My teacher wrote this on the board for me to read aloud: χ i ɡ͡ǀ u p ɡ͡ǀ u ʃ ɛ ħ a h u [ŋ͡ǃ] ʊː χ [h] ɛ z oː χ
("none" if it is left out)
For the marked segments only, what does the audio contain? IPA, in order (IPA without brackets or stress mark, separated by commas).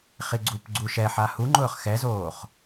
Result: ŋ͡ǃ, x